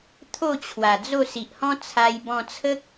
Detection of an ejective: absent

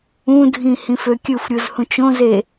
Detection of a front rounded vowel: present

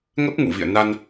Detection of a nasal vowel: absent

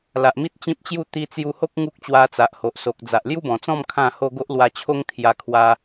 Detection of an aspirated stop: present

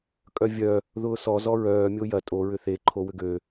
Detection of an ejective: present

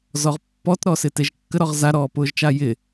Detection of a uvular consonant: present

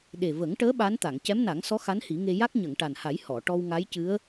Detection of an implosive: present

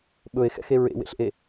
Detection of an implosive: present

